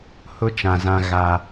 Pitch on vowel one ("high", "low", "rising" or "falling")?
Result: high